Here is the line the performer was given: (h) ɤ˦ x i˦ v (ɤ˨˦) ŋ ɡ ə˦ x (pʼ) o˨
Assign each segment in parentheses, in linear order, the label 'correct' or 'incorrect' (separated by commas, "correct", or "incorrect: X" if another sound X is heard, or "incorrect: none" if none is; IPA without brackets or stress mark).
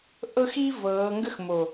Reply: incorrect: ʔ, incorrect: ɤː˨˦, incorrect: m